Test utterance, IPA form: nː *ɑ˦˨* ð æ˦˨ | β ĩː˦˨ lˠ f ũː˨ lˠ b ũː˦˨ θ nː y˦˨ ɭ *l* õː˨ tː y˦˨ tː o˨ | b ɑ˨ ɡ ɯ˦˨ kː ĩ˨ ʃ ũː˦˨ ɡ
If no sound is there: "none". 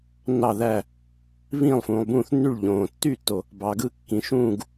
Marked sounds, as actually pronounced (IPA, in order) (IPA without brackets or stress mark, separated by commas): ɑ˦˨, ʎ